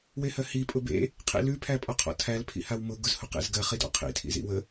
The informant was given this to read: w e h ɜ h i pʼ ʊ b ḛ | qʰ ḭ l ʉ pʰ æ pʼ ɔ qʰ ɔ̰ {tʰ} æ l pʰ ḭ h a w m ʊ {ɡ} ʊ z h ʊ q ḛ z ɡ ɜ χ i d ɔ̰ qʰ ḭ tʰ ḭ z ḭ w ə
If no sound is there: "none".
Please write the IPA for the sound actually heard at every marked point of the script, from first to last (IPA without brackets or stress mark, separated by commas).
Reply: tʰ, ɡ